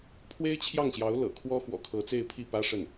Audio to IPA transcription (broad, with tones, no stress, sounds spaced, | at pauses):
pʰ w e˥ ɪ̯ t͡ɕʰ j ɑ˥˩ ŋ ɕ j ɑ˧˥ ʊ̯ l ɤ̰˨˩ kʰ w ɔ˥ x w ɔ̰˨˩ kʰ ɤ˧˥ t͡s e˥˧ ɪ̯ pʰ i˥˩ p ä˥ ʂ ə˥˩ n